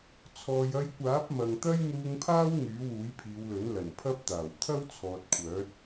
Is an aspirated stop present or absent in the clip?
present